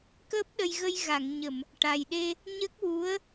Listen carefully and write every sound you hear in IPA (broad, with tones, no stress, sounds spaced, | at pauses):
k əː˦˥ p̚ ɗ ə˧ j ɣ ə˧ j ɣ a˨˩˨ ŋ ɲ ə˨˩˨ m | ʈ a˨˩ j ɗ e˧ | ɲ ə˦˥ k̚ w u˧˥ ə̯